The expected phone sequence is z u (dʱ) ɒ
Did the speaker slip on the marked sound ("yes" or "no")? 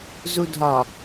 no